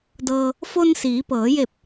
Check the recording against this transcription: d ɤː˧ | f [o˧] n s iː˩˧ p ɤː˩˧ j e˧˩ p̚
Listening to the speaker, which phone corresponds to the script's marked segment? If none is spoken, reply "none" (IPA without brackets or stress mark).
o˧